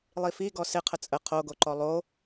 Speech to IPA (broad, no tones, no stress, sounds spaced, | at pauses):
lˠ i f i ɡ ɔ s ɪ qʰ ə t͡sʼ ə qʰ o ɡ o ǃ ɔ lˠ o